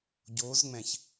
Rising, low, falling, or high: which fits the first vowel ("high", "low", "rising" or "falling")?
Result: rising